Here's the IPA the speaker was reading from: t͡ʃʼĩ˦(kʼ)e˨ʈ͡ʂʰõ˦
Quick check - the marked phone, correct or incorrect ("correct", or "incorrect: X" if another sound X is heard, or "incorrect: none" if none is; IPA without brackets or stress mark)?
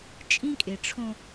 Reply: correct